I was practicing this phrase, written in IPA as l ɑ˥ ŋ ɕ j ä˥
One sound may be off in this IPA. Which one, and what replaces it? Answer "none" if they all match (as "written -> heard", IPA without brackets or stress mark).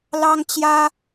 ɕ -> t͡ɕ